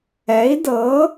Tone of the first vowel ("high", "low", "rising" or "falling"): rising